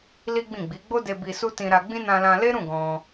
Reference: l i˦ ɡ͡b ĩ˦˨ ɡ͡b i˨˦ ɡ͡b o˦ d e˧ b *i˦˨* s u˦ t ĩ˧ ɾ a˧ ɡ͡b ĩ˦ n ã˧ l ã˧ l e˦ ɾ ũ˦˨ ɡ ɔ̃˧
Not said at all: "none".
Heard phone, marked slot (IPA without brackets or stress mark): i˧